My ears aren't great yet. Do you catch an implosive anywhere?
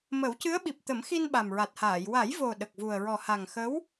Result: yes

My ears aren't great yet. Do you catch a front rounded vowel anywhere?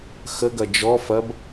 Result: no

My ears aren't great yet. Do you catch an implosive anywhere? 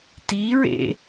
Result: no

